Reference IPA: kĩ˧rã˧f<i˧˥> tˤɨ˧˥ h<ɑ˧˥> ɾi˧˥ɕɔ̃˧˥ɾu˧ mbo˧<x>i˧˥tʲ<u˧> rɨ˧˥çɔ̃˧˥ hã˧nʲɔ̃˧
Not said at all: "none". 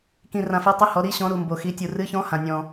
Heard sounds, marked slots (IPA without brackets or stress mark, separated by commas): e˧˥, ɔ˧˥, x, u˧